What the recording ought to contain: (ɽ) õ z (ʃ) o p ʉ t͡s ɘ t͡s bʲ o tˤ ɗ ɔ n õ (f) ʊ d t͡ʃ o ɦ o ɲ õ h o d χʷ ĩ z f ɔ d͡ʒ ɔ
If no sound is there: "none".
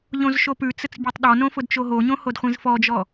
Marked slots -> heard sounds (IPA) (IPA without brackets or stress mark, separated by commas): ʎ, ʃ, f